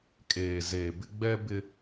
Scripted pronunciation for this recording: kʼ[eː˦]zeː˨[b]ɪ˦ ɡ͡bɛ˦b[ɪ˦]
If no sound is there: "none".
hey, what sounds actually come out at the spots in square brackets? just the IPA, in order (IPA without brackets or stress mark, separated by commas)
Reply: eː˨, b, ɪ˦